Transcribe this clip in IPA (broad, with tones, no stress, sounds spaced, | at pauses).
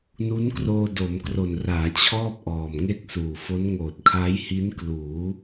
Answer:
n u˦˥ n k r oː˧ d o˩˦ m k r o˨˩ n r aː˩˦ t͡ɕʰ ɔː˥˩ p̚ ʔ ɔː˨˩ m ŋ e˥˩ k̚ s uː˨˩ f o˦˥ n ŋ oː˨˩ t̚ kʰ a˦˥ j h i˦˥ n k l uː˩˦